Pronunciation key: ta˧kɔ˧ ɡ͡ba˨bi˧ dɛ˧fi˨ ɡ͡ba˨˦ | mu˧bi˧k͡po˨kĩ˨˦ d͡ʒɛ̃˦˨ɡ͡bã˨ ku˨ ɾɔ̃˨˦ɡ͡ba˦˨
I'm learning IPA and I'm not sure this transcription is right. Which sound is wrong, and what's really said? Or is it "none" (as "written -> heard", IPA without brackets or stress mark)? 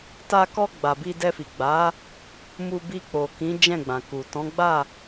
ɾ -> t